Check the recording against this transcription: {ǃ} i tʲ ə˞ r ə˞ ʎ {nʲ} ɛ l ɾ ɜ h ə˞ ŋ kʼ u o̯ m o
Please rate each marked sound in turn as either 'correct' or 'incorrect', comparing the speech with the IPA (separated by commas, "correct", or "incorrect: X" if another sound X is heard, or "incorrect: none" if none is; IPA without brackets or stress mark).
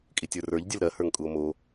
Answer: incorrect: kʼ, incorrect: dʲ